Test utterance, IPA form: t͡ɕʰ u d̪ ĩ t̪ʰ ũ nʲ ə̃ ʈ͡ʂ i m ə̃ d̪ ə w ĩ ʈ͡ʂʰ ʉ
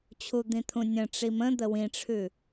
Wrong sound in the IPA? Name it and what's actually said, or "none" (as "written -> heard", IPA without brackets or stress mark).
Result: none